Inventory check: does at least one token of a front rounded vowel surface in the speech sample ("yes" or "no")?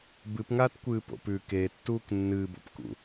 no